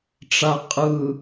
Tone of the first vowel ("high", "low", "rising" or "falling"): low